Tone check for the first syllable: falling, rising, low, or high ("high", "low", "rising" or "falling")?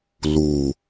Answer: low